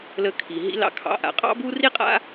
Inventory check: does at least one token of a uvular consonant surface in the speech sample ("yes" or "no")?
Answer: yes